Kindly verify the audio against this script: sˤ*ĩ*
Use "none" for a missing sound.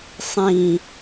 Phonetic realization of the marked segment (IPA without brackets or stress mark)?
ĩ